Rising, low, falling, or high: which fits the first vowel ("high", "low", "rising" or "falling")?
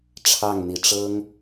falling